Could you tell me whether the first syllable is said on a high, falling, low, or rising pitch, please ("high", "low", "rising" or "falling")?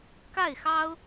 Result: falling